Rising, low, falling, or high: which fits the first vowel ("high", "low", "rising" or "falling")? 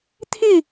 falling